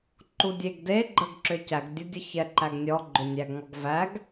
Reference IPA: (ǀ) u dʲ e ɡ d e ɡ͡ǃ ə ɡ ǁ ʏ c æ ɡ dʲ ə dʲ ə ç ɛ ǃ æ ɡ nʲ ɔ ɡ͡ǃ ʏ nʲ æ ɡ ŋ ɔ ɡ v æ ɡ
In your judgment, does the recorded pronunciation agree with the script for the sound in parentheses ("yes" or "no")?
no